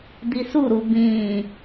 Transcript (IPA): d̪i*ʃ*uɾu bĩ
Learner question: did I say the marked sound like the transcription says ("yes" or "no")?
no